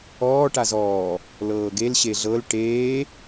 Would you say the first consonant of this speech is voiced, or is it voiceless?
voiceless